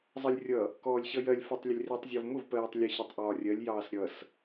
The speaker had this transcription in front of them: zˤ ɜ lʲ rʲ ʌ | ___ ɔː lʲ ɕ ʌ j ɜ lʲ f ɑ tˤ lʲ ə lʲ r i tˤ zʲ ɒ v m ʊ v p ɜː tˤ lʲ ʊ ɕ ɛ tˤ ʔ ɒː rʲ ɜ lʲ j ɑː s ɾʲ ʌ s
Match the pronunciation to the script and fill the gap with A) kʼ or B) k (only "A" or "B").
B